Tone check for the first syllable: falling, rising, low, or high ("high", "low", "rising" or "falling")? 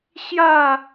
falling